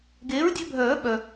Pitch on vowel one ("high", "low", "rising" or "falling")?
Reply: rising